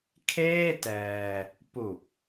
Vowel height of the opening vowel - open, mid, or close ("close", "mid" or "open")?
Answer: mid